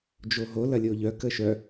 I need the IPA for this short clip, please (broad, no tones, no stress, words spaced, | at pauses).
d͡ʒoɦo lɐlʲoʎœ kəʃœ